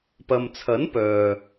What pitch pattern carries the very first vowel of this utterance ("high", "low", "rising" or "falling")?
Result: low